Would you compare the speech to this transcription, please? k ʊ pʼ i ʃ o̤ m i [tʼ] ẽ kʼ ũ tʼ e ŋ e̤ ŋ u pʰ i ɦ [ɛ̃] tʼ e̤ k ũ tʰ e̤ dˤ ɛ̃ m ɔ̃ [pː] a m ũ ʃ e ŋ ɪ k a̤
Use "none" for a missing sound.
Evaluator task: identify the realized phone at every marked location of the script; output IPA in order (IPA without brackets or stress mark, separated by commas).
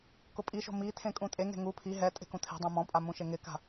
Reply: tʰ, ɛ, pʼ